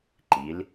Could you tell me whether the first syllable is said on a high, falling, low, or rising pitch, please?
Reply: rising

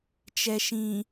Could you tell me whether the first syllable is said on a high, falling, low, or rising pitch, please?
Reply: low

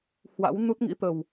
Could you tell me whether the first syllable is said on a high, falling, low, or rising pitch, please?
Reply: rising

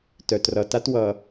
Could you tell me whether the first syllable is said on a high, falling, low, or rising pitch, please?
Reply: low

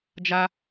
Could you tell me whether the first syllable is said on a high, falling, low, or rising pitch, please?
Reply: high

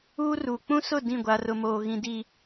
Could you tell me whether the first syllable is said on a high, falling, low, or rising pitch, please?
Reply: high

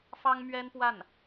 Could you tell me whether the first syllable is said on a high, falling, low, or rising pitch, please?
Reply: high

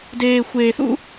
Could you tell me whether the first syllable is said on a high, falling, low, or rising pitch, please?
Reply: low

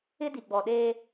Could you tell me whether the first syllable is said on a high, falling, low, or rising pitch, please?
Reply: high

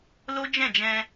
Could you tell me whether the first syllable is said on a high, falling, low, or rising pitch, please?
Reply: high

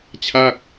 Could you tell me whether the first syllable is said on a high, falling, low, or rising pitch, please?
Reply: falling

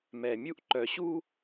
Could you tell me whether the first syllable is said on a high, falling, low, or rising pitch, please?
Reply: low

